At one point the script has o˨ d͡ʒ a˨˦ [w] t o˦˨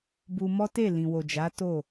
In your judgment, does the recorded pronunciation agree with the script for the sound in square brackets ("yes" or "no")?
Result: no